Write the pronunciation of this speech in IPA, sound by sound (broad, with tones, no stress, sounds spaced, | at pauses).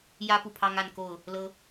j ä˦ p u˨ pʰ ɑ˦ ŋ a˥˨ n k o˥˨ ʊ̯ | l ɤ˦